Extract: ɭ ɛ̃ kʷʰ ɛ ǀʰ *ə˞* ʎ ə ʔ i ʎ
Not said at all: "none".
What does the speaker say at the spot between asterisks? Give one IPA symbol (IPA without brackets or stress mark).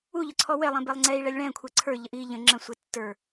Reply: ə˞